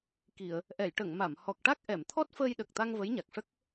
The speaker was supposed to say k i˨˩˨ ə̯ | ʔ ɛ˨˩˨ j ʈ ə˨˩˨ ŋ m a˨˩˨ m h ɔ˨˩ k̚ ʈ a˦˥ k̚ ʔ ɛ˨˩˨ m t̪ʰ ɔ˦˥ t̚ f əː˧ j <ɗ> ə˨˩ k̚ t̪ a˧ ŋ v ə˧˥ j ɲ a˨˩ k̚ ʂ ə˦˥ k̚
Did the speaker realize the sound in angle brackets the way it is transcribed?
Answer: yes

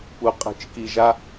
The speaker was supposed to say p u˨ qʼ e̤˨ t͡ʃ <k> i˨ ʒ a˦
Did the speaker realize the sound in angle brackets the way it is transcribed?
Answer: yes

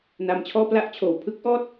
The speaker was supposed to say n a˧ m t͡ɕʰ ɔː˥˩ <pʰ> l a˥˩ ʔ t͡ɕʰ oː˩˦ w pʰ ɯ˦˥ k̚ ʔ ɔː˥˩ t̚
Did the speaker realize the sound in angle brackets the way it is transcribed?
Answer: no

